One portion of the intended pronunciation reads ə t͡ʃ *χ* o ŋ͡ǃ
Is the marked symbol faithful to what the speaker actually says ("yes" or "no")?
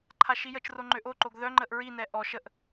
no